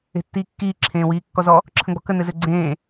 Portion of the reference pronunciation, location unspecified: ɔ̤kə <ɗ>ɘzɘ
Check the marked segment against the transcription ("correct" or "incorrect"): incorrect